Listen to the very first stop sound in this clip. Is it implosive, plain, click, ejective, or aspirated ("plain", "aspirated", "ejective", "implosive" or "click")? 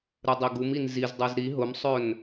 plain